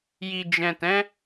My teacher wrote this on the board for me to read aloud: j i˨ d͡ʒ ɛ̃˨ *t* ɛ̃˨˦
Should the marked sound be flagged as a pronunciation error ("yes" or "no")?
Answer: no